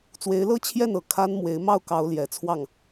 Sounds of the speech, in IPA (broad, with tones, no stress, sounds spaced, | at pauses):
t͡s w e˧˥ ɪ̯ l ɤ˥ t͡ɕʰ j ɛ˥˩ n ɤ˨˩ kʰ a˥ n m w e˧˥ ɪ̯ m ɑ˥˩ ʊ̯ k ɑ˧˥ ʊ̯ l j ɛ˨˩ t͡sʰ w ɑ˥˩ ŋ